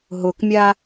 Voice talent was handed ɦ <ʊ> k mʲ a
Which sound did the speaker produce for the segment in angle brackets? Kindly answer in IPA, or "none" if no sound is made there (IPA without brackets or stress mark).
ʊ